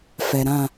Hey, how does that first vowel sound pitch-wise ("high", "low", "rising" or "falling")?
low